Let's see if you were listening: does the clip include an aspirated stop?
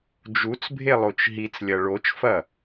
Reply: no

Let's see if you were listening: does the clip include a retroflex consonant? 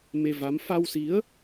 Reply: no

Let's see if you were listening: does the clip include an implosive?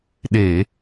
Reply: yes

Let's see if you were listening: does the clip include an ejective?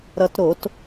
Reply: no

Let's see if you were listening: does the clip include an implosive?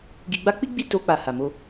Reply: no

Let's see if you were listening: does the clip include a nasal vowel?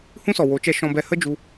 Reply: yes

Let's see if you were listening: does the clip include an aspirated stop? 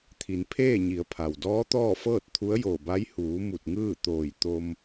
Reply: yes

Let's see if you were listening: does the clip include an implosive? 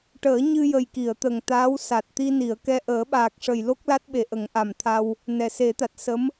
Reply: yes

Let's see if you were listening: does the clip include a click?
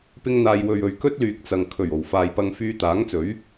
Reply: no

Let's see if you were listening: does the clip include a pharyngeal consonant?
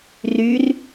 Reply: no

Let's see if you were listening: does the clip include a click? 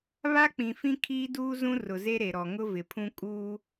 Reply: no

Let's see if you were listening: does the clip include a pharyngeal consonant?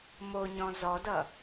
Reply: no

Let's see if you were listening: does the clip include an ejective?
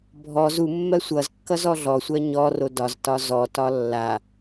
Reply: no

